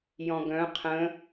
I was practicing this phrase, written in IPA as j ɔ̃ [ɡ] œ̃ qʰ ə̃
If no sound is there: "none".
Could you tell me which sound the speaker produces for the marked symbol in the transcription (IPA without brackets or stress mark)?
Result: ɡ